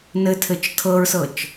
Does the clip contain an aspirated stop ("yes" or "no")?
yes